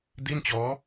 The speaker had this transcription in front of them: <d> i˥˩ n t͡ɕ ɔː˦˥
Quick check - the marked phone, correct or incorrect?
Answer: correct